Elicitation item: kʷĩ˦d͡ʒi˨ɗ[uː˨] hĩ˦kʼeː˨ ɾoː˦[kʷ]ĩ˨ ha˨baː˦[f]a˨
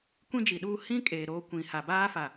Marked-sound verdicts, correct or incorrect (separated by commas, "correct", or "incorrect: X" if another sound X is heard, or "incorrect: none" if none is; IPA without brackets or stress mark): incorrect: uː˦, correct, correct